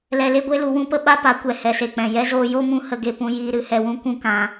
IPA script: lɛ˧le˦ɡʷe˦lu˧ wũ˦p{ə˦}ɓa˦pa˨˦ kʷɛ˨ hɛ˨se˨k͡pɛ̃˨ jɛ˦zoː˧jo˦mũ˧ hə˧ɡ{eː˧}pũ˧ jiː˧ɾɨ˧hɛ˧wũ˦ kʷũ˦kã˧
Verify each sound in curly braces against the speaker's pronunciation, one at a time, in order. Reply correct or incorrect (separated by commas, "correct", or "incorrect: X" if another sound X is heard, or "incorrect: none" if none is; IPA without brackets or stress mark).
correct, incorrect: e˧